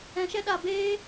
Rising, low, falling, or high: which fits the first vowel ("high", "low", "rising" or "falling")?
low